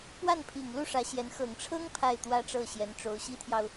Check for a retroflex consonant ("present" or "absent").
present